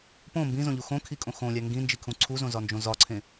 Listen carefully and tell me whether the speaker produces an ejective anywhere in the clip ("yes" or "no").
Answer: yes